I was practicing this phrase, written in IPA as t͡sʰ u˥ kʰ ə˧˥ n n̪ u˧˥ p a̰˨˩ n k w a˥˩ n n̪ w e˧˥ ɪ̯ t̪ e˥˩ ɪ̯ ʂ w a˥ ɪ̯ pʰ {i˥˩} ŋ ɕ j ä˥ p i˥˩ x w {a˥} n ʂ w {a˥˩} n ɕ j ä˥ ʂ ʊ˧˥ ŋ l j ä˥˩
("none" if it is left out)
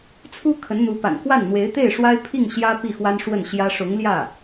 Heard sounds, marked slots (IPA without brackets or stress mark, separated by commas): i˥˩, a˥, ə˥˩